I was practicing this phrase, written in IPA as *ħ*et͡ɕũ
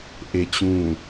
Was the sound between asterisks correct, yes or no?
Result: no